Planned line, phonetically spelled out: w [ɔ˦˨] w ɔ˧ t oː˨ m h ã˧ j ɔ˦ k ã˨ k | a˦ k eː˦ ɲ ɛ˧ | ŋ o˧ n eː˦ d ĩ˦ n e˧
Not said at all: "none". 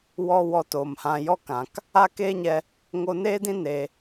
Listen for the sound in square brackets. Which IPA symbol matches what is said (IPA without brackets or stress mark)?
ɔ˦